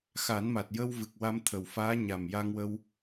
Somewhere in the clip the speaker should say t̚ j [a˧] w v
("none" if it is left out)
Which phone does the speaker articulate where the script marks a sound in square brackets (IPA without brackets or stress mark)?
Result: ə˧